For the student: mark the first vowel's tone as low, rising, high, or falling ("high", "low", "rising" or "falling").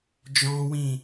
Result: high